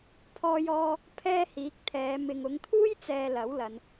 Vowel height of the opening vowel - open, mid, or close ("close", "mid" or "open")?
mid